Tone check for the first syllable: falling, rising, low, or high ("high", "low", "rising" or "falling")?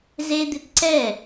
high